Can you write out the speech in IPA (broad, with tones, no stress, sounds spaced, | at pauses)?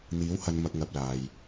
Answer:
n̪ iː˨˥ w h ɐ˨ n m ɐ˨ k̚ ŋ ɐ˨ p̚ l aː˨ j